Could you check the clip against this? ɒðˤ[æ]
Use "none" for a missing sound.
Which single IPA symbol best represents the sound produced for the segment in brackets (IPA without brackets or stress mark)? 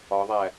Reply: æ